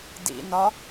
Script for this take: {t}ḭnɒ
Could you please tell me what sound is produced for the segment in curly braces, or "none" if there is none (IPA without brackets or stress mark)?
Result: d